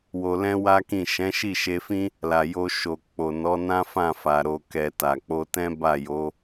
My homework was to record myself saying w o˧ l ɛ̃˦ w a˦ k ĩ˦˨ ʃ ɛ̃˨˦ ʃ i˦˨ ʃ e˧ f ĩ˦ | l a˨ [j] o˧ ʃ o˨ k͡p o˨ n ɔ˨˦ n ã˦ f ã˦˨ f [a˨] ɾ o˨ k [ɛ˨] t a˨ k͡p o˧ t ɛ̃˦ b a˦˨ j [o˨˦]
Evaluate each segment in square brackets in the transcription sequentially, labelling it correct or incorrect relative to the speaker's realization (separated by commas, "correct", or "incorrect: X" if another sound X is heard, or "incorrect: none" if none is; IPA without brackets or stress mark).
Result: correct, correct, correct, correct